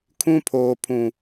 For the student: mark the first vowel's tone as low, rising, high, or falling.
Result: high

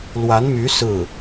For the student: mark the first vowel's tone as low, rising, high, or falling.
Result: rising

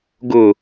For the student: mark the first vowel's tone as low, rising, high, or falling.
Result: low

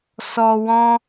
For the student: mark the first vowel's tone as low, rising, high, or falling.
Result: low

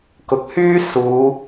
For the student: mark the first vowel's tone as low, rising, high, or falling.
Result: rising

